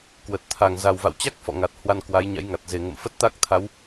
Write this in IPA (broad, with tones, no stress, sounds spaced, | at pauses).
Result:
k w ə˨˩ t̚ t̪ʰ a˨˩ ŋ z a˨˩ w v a̰˧˨ w t͡ɕ a˦˥ k̚ f ɔ̰˧˨ ŋ a˨˩ t̚ h w a˧ n k w a˨˦ j ɲ a̰˧˥ j ŋ a˨˩ t̚ z e˨˩ ŋ ə̰˧˨ m f ə˦˥ t̚ t̪ a˦˥ k̚ t̪ʰ a˨˦ w